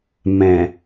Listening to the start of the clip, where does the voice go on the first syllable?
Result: low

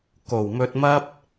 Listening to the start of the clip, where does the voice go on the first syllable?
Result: low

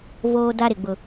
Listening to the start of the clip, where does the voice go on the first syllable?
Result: high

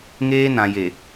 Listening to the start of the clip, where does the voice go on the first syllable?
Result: high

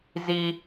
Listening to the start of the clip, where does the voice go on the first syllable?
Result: high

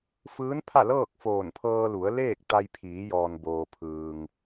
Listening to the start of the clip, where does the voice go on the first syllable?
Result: rising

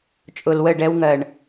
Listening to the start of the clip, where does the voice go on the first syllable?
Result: low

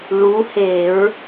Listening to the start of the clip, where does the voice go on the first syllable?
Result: rising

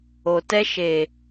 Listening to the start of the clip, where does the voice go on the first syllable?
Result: low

